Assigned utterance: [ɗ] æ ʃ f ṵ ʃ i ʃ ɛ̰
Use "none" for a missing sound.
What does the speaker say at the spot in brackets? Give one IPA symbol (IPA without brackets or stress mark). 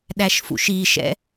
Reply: ɗ